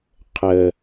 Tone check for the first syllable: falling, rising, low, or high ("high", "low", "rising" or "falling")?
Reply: low